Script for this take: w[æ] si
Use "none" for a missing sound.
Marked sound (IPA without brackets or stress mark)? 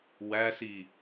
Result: æ